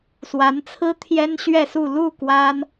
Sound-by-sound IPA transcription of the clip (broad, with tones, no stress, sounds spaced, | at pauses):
s w a˧˥ n t͡sʰ ɹ̩˥ t̪ʰ j ɛ˥ n ɕ ɥ ɛ˥˧ s u˥˧ l u˥˩ k w a˥ n